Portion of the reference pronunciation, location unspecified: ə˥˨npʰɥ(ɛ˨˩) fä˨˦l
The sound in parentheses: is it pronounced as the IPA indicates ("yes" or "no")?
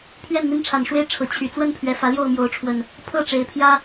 yes